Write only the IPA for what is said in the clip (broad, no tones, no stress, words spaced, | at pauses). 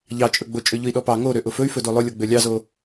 ʎɑt͡ʃʼɵɡ͡bo t͡ʃʼøʎʊi̯ɗɔpɑ ŋoɾø ʔʊfɵy̯fɵdo lˠʊlʲɔ ɡ͡bølʲɑzo